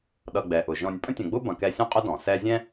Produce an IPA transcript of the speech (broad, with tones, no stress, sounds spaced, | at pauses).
ɗ ʌ˨ ɡ͡b ɛ˩ ʔ ʊ˩ ʒ ɔ̃˨ nʲ pʼ ə̃˦ tʲ ə̃˨ ɡ͡b ʊ˥ b ɐ̃˨ k ɛ˦ sʲ ɔ̃˥ qʼ ʊ˥ d ɔ̃˩ s ɛ˦ zʲ ɛ̃˥